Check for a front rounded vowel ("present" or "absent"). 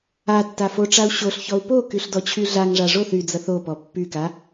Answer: present